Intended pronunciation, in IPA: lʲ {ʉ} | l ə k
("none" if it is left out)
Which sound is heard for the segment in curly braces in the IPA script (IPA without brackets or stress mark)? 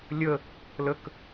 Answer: ə